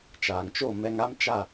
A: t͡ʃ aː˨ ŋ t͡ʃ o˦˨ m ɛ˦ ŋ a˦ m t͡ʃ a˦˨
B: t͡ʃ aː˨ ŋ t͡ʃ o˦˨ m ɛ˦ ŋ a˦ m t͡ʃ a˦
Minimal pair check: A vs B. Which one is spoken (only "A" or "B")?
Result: A